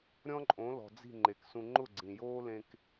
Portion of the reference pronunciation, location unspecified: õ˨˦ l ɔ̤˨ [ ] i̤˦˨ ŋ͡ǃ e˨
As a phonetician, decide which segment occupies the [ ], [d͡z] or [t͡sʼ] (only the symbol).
d͡z